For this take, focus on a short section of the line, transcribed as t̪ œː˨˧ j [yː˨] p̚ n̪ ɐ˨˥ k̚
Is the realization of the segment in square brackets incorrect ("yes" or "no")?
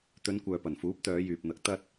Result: no